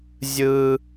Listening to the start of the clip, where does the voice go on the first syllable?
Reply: high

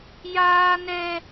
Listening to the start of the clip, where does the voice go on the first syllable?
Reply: high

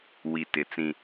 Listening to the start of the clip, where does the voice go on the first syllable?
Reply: low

